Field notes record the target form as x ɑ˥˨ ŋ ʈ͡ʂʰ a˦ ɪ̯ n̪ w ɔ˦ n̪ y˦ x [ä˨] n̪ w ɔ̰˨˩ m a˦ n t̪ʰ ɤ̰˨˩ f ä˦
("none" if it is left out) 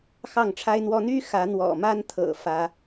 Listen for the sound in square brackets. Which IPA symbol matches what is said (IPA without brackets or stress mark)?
ä˨˦